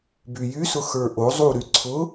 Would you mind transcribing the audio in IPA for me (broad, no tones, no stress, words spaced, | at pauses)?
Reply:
byjysʊ xə˞ʔo zˤuɾy ǀʰʊ